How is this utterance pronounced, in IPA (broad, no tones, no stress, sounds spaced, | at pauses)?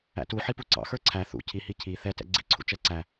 æ̰ t u ħ i p u ǀ ɑ̰ x ə˞ ǀʰ æ θ ṵ cʰ i h i cʰ i θ ɛ t ɛ̰ ɡ͡ǀ ḭ ǀʰ ṵ t͡ʃ ɛ ǀ æ